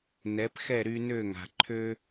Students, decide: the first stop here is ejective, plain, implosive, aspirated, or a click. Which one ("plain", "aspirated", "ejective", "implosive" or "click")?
plain